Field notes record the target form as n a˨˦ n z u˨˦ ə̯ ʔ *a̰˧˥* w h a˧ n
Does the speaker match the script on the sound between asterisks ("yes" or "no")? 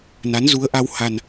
no